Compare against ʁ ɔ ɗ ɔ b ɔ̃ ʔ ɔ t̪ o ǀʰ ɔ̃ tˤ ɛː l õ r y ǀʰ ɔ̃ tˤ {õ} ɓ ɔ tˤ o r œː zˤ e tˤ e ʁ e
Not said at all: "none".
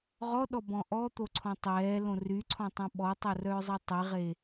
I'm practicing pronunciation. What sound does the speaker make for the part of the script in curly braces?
õ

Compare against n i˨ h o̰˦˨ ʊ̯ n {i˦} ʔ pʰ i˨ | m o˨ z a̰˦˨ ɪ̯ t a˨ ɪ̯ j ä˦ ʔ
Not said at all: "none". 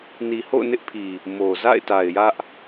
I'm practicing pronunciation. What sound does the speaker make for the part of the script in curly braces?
ɪ˦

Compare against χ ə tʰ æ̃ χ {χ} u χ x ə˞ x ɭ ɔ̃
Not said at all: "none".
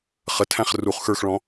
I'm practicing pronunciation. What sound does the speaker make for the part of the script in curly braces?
r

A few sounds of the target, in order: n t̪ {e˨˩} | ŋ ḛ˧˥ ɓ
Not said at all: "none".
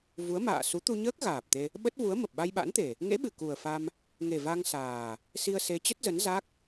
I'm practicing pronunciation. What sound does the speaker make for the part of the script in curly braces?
e˨˩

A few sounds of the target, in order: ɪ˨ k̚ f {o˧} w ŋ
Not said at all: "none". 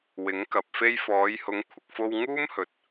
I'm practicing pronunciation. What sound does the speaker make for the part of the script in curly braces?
o˧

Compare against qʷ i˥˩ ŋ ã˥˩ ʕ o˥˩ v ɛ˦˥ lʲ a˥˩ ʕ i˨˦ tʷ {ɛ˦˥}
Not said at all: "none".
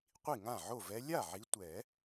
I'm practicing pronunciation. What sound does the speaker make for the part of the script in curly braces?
ɛ˨˩˦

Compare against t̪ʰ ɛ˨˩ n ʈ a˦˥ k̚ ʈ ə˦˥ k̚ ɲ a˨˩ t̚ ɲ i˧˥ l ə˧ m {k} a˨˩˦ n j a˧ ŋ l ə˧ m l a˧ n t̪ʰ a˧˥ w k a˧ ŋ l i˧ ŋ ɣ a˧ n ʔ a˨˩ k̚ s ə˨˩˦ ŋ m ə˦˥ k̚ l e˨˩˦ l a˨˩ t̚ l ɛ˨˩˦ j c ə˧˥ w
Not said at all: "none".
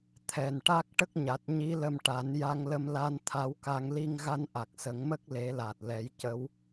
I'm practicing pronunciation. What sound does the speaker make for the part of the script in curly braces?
ʈ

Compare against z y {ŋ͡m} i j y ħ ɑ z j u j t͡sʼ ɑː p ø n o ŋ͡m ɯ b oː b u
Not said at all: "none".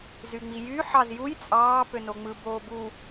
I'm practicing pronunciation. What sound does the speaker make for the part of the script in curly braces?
ŋ͡m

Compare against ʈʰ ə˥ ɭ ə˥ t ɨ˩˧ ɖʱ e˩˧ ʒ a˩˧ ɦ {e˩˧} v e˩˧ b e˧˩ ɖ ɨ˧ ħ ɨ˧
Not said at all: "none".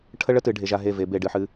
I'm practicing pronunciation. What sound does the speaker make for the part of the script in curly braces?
e˧˩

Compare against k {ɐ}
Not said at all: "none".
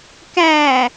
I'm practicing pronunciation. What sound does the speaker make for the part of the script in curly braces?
æ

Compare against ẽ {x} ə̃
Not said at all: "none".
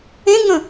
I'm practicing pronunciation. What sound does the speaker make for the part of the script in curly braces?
ŋ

